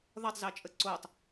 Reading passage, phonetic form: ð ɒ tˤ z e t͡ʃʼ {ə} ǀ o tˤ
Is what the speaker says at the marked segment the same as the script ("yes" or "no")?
yes